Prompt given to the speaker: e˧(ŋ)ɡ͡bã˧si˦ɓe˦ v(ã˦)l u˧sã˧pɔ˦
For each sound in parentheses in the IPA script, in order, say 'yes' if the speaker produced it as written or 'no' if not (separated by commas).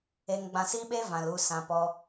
yes, no